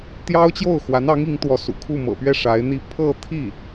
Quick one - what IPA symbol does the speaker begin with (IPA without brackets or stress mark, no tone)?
t̪